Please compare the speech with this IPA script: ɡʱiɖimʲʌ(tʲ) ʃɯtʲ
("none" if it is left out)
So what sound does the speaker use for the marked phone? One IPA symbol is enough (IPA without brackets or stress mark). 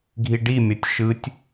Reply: tʲ